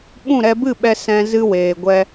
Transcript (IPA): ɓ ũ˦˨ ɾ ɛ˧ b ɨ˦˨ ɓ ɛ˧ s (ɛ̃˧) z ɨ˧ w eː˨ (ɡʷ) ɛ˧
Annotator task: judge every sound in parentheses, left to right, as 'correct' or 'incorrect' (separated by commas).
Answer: correct, correct